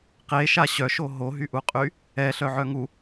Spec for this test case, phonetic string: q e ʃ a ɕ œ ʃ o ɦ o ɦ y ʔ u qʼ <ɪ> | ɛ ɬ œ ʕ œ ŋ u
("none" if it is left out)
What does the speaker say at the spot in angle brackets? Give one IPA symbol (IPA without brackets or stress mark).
y